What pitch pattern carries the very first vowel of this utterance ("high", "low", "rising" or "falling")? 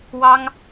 high